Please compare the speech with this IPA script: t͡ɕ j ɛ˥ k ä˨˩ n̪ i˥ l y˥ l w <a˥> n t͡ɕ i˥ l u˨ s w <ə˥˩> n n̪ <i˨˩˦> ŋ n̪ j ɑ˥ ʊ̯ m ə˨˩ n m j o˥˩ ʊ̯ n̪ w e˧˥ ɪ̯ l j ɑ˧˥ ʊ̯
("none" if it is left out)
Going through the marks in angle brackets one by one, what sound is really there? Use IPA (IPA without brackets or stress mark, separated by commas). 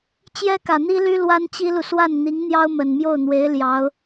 a˥, a˥˩, i˧˥